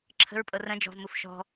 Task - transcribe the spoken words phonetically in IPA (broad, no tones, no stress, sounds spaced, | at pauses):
ǁʰ ə̤ ɹ pʼ ɤ r ə̃ d͡ʒ ɔ̤ v m u f ʃ ɔ̤